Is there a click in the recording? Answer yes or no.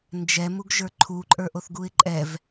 yes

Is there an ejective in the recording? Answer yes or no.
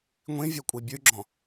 yes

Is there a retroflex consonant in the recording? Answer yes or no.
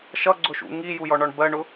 yes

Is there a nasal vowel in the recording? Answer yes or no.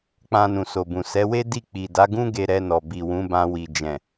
yes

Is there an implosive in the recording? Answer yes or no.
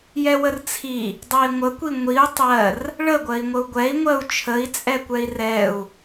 no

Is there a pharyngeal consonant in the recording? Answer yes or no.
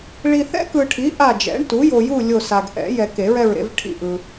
no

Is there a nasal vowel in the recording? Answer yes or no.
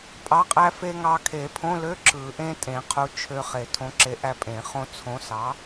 yes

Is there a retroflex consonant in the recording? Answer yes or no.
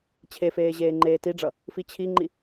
yes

